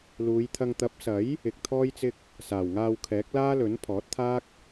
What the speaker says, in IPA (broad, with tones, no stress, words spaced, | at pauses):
luː˨˧jt̪ʰɐ˧ŋ t̪ɐ˨˥p̚sɐ˨˥j | ɪ˨˥k̚t̪ʰɔː˥jt͡sɪ˥k̚ | saː˨˩wŋaː˨w kʰɛː˨˥k̚laː˥lɵ˨˥n pʰɔː˨˥t̚t̪ʰaː˥k̚